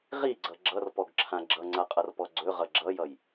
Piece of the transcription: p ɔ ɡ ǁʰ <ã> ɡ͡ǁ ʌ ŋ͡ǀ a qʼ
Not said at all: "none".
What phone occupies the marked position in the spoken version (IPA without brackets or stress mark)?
ã